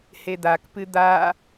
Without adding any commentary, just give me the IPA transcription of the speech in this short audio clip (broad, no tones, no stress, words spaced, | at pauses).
hed̪akpɨ d̪a